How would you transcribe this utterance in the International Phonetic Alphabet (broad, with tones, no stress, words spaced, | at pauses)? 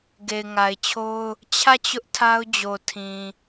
ɡe˨ɪ̯ŋa˨ɪ̯t͡ɕʰo˦ʊ̯ | t͡ɕʰä˦˨t͡ɕʊ˦ʔ tʰa˦ʊ̯d͡ʑo˨tʰĩ˨